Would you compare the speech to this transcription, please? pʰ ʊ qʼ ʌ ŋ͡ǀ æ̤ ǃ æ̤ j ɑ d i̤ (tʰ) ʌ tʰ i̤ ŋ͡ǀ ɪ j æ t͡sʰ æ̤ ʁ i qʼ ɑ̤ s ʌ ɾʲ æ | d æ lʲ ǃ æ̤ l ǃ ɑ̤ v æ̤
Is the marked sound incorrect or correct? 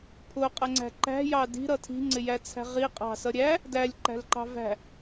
incorrect